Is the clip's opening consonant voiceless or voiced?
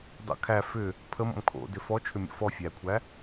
voiced